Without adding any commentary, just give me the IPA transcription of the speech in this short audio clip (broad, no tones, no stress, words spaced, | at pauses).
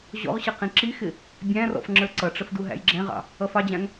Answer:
ʑɔ̰ʁɕʌ qĩǁixɪ | bʲæ̃rɔ̰f ŋ͡ǁə˞ǀʌʈ͡ʂəf duɦæ̰jɡ͡ǁɛ̃ʁɑ̰ | ʌfɑd͡ʑæ̃ŋ